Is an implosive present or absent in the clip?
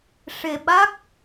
present